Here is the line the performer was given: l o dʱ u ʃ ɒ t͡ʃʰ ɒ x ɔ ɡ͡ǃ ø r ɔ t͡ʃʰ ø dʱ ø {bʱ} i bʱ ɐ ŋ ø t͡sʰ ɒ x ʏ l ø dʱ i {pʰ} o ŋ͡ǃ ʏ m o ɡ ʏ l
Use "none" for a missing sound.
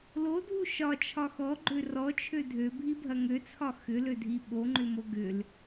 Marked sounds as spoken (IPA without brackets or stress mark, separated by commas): bʱ, ɓ